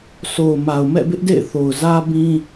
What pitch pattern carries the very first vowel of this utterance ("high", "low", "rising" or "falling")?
low